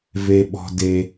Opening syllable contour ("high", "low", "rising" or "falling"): low